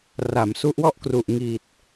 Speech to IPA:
r a˩˦ m s u˦˥ ʔ w ɔ˥˩ ʔ k r u˨˩ ʔ ŋ i˨˩ t̚

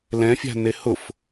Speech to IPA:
l ɛ̃ fʲ a̤ n e h ʊ f

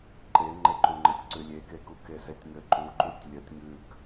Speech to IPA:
ǃ e ŋ͡ǃ e ǃ u ŋ͡ǃ ɘ tʲ ǀ ʉ lʲ e k e k u k e s e tʲ ŋ ɘ ǃ u ǃ u tʲ lʲ ə tʲ ŋ ʉ k

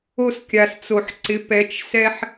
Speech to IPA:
o˦ s kʲ a˨ s t͡s o˨ ħ ǀ ɪ˨˦ p ɛ˨˦ t͡ʃ s ɛ˦ ħ

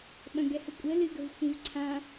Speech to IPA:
ɓ ɐ̃ ɡ ɛ h ə kʷʼ ə l ɨ ɡ ə v xʷ ĩ v ǀʰ ã

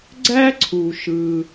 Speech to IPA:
ɡ͡ǀ æ˥ ǀʰ u˩ ʃ ɯ˩

